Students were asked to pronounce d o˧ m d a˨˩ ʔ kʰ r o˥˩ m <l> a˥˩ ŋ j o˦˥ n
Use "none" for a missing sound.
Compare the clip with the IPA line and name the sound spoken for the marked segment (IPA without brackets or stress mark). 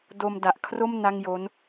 n